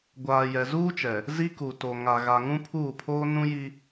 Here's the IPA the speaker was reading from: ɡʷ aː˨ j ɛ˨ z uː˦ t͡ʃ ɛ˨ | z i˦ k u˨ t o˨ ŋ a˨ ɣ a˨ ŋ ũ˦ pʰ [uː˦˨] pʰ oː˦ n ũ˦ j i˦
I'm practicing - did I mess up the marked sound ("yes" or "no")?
no